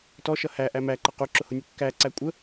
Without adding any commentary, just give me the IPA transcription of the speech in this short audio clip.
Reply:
tɔʃʌ hæʔæ mæǃʌ quǁʊhʊnʲʊ kːæǀæ kʷʼə

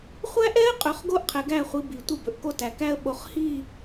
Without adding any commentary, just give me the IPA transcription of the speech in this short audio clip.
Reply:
χʷæ˦ʔɛ˦ə̯ qʼɵ˨˦χɡo˦ʔ qʰɛ˨ɡæ˦˨χʷi˨˦ bi˨tʷi˦˨bɵ˨ʔko˦ tæ˨kæ˦ə̯ɓo˨χhi˦˨

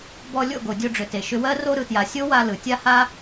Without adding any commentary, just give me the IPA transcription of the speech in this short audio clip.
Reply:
bɔ˧ lʲo̰˦˨ɡo˨dʲo˧ɖ͡ʐʏ˨ te˨ʃʏ˧wɜ˦ ro˧ɾɯ˨tja˨ sʲo˦wa˧ lɯ˨tʲa˦ha˦

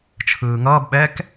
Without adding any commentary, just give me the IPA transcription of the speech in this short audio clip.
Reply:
t͡ʃʰɯːŋʌːb ɓɛk

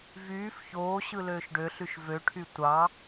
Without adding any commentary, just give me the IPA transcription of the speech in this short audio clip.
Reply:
vyːf çoːɕɯ løːʃɖøɬyʃ vøʈʰy tʷɑ

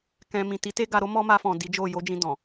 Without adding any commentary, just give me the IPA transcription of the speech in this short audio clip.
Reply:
kɛ̃˧ mĩ˨ ti˨˦ te˦ɡa˧ɾo˦ mɔ˦ma˧fɔ̃˨ di˨˦d͡ʒo˦˨ jo˨˦d͡ʒĩ˧ dɔ̃˨

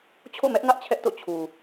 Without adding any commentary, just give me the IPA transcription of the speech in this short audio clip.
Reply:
t͡ɕʰo̰˦˨mɛ˦ʔŋä˦ʔ t͡ɕʰɛ˦ʔto̰˦˨ t͡ɕʰu˨

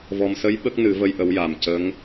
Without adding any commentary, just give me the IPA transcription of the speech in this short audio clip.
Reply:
vɔ˨˩msə˧˥j ɓə˦˥k̚nɨ˨˩˦və˧j ʔə˧˥wja˨˩m cə˧˥ŋ

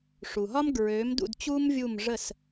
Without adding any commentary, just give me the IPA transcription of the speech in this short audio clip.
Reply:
ʂu˩ɦɒ˥mɡɹø˩˥mdṵ˥˩d t͡ɕuː˥mvʲu˥˩m ʐə˥˩s

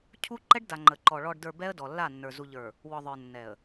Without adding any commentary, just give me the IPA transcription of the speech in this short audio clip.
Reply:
cʰu˦ǃɛ˦ɖda˨ ŋ͡ǃə˨ǃɔ˨ ɭɔ˨ɖdə˞˨ bɛ˦ə̯dɔ˨lːa˦˨nːə˞˨ zu˨ʎə˞˨ | wɔ˨ ðˤə˞˨nːɛ˨ə̯

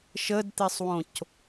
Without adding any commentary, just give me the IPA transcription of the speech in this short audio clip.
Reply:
ʃədt̪esˤwõc

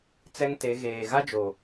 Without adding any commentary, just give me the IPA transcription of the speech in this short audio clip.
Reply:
t͡sɛ˦ŋte˨˦ ɣeː˨ ɣa˦d͡ʒo˨

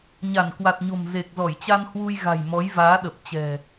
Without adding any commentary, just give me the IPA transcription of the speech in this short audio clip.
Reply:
ɲa˧˩nkwa˨˩t̚ɲo̤˨˩m ze˨˩k̚zɔ˧˩jt͡ɕa˧n hwu˧jɣa̤˨˩jmɔ˨˦j vaː˨˦ɗə˨˩p̚t͡ɕɛ̤˨˩

